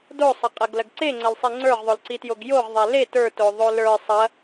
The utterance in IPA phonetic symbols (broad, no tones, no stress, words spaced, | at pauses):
dosˤɐqʼɐɡlɐɡ ǀeŋ͡ǀɐlsˤi ŋ͡ǀə˞ʁðˤolǀitjoɡ joʁðˤæ le tə˞toðˤo lə˞ sˤɐ